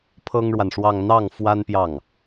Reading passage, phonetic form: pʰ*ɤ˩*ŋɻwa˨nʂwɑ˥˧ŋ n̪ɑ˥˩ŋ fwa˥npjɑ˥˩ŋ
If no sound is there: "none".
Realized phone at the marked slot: ɤ˥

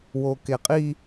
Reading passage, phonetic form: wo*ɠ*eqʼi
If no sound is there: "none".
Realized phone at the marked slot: k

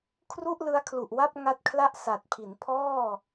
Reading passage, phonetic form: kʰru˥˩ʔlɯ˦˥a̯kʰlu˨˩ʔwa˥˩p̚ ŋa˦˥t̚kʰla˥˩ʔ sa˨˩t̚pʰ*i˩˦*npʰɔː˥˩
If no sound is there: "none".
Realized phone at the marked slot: i˩˦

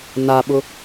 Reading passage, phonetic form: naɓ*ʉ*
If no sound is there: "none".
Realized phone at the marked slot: ʊ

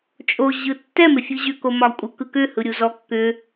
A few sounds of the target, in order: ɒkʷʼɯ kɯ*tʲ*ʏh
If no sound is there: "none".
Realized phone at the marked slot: k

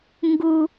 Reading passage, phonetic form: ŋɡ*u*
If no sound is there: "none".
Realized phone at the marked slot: u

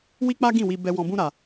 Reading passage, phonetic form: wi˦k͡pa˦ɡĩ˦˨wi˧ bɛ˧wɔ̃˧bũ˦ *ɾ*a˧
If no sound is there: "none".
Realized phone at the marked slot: ɾ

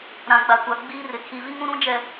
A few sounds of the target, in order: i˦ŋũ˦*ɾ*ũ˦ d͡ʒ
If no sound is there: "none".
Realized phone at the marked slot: ɾ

